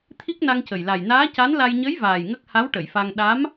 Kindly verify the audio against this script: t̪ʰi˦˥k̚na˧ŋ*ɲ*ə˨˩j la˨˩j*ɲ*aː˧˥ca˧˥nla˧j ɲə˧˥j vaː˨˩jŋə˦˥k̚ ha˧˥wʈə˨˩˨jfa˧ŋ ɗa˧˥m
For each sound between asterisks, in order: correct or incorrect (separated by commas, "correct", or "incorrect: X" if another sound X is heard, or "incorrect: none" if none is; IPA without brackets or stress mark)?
incorrect: c, incorrect: n